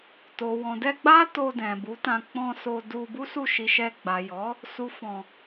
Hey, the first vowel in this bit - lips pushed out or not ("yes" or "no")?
yes